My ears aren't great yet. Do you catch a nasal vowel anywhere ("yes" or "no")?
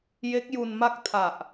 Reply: no